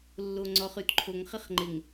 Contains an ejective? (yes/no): no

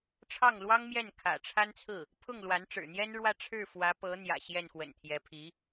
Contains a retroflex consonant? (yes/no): yes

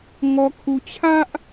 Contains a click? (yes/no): no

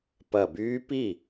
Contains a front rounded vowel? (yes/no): yes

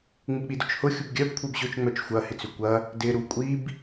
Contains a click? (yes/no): no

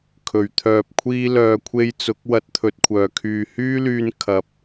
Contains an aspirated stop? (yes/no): yes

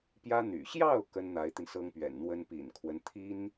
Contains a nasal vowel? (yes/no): no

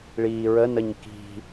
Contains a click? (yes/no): no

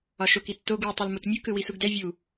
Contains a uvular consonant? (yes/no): no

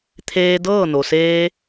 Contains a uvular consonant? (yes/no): no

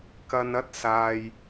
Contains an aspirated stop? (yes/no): no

